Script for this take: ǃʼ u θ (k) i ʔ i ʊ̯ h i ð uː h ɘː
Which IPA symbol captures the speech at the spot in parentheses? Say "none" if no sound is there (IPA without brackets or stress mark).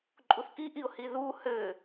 k